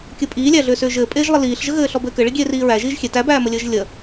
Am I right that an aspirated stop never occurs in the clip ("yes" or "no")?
yes